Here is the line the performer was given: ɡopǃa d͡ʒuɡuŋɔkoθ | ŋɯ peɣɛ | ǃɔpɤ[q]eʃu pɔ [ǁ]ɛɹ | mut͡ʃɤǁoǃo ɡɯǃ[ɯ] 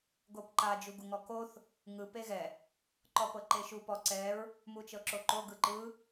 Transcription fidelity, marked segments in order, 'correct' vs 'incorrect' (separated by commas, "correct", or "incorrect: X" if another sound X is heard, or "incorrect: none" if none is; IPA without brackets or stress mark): incorrect: ǃ, incorrect: ǀ, correct